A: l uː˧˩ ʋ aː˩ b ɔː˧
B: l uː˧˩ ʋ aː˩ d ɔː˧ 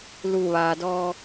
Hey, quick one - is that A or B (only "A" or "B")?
B